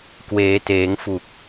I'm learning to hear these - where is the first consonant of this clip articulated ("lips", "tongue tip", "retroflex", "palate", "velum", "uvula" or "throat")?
velum